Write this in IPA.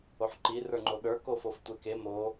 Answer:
oħǃi rə˞ŋ͡ǃoɗə˞ kofoftʷeke mo

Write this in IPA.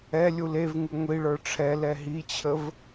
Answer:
ɛ lʲulevŋu ŋʷiɭə˞ ʈ͡ʂʰɛlɛ ɦit͡ɕʰəv

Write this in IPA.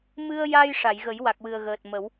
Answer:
mɨ˧ə̯ja˧j ʂa˨˩˨jɣə˨˩˦j wa˨˩k̚wɨ˨˩ə̯ɣəː˨˩t̚mə˨˩˦w

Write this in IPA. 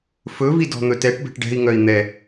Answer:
fɵvi dɔ̤n̪ɵtɛʈbɛ̤ʈ ɖɛ̤i̯ŋœi̯ n̪ɛ

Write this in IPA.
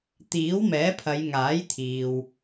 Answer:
t̪iː˨˥wmɛː˨˥pʰɐ˨˧j ŋaː˨˥jt̪ʰiː˨w

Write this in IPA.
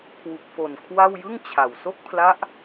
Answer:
kʰwu˨˩k̚fo˨˩nkʰwa˥˩w jɯ˥˩ŋ t͡ɕʰa˨˩w so˥˩k̚pʰla˦˥ʔ

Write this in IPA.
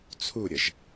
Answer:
t͡sʰuɾʲəʒ

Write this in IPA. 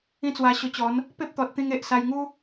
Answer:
ĩ˦t͡swa˧ɕo˧t͡ɕɔ˨˦n | pe˦p̚t̪ɔ˨t̚t̪ĩ˧ŋ e˨ʔsa˧jŋu˦

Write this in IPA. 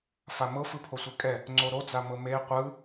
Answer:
famɤ fɯpʰosʷekʼɛ | ŋ͡ǀoɾod͡za mɤme qʷɯ

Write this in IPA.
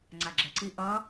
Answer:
ŋ͡ǀaɡ͡ǁɛǀi ʔʌ

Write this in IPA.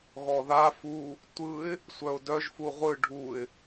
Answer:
ɣɔða fu | tʷɯɪ̯ | sʷœʊ̯dœʒ fuʁʷɯ ɖʱuɪ̯

